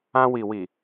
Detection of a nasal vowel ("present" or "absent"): present